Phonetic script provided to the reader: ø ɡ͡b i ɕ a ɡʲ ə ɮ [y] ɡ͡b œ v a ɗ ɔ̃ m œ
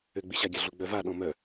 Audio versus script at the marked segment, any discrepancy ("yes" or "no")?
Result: yes